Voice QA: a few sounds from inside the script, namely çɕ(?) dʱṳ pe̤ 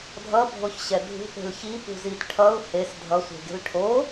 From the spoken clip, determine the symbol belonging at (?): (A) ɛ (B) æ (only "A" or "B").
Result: A